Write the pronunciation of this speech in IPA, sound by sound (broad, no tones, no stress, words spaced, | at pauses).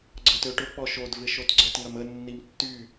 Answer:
ɡ͡ǀətøʈʊ k͡pɔʃod vɪʃotɡ͡ǀət ŋɐmə nːimtːy